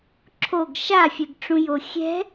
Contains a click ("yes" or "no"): yes